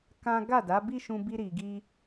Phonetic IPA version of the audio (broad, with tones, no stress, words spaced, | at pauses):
kã˦ ɡa˦˨da˨˦bi˦ʃũ˧ bi˦ɾi˧ɡi˦